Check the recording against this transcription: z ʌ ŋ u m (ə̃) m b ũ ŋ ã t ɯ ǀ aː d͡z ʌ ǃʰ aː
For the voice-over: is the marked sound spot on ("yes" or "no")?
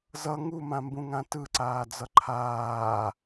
no